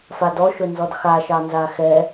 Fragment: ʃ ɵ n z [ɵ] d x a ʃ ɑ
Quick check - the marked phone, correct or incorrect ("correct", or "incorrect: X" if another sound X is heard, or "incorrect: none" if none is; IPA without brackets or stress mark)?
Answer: incorrect: ɔ